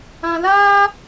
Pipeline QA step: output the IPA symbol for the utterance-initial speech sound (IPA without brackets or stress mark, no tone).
ã